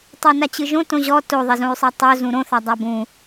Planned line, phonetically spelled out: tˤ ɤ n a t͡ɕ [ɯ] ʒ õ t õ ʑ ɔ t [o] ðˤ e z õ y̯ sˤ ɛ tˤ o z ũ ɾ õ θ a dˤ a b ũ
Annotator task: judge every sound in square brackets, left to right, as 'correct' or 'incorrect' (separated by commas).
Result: correct, correct